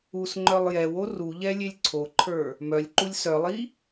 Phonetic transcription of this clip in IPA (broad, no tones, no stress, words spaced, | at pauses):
usŋ͡ǃœlˠ jɛwo ruʎɛ lʲelʲǀʰoǃʰə˞ | mœlʲǃulʲ sœlˠi